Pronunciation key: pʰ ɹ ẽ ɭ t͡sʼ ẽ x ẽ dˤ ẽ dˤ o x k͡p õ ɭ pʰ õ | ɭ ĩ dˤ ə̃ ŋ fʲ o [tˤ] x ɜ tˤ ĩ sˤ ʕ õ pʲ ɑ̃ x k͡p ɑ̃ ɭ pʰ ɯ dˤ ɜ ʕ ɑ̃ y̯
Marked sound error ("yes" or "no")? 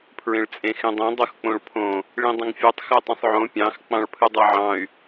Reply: no